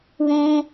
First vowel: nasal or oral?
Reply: nasal